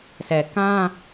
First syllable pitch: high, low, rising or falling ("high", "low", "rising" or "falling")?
low